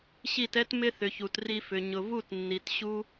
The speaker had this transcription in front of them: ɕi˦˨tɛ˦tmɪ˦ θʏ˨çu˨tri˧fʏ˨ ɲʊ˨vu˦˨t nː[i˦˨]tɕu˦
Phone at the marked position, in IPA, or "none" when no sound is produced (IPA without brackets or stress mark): i˨